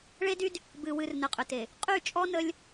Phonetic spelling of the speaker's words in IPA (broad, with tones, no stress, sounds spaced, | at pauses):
ɭ e˦ d y˦ d | b ɨ˨ w ɨ˨ r n ə˨ qʼ ʏ˨ t e˨ | qʼ y˦˨ t͡ʃʼ ɔ˦ n ə˦ lʲ